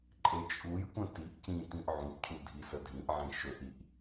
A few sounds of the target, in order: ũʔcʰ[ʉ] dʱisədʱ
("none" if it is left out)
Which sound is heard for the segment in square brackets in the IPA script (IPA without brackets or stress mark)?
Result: u